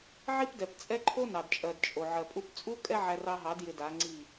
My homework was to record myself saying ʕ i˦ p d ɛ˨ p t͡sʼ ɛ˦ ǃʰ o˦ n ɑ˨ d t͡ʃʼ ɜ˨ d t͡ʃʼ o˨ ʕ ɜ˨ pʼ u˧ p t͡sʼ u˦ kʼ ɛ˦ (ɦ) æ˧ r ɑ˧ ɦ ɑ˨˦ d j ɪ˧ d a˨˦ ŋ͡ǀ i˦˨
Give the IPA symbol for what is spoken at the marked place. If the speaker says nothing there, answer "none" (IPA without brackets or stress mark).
ʕ